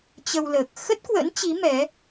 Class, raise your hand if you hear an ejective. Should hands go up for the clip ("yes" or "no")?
no